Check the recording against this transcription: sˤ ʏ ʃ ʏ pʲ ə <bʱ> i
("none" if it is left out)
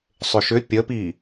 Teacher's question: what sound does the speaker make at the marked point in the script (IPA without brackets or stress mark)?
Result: p